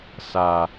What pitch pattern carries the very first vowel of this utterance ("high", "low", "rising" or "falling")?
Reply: low